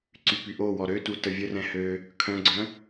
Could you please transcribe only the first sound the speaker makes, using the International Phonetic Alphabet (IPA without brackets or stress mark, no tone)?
ǀ